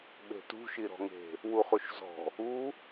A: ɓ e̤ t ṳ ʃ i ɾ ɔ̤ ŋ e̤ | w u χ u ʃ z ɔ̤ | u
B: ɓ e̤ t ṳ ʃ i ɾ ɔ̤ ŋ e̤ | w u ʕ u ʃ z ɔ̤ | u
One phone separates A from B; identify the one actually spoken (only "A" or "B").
A